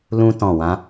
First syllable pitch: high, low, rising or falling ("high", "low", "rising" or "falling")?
high